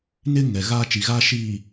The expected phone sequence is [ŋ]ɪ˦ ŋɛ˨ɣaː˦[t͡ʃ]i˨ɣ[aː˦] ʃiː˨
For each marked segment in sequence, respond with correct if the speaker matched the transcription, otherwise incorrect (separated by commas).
incorrect, correct, correct